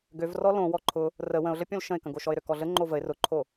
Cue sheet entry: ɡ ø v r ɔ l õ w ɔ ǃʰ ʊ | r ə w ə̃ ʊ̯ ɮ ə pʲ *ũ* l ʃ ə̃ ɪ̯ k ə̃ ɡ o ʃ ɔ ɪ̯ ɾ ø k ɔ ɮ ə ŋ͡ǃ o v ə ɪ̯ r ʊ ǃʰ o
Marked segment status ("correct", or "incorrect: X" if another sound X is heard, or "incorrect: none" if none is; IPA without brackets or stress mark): incorrect: õ